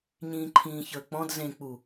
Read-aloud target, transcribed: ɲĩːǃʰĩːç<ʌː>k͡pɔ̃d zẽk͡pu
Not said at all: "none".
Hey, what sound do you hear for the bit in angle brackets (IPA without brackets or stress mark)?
əː